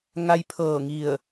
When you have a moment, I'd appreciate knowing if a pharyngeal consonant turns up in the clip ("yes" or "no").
no